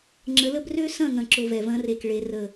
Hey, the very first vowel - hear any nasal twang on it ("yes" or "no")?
no